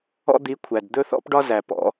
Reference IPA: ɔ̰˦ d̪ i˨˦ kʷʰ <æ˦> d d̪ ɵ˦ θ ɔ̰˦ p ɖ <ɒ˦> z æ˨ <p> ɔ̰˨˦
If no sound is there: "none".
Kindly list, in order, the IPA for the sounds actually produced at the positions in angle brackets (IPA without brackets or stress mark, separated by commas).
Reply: æ˨, ɒ˦, p